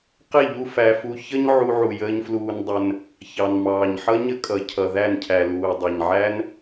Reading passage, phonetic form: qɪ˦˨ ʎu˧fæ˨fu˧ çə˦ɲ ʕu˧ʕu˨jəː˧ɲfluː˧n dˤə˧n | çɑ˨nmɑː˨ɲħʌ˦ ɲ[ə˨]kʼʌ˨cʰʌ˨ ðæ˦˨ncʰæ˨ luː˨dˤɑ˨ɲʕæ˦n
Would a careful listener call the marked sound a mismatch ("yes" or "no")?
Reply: yes